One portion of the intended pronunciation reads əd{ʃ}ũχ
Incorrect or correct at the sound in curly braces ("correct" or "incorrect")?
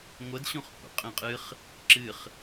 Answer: incorrect